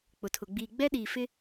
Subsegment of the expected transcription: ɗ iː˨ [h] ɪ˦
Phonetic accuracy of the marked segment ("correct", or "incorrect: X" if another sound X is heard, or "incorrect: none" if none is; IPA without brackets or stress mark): incorrect: f